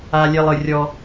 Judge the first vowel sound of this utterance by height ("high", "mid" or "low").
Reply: low